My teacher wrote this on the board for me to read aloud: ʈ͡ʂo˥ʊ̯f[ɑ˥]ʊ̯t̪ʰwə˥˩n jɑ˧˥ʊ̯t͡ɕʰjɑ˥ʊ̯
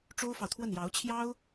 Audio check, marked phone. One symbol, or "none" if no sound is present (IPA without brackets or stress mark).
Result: ɑ˨